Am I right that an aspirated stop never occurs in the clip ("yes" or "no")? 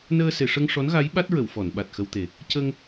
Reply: yes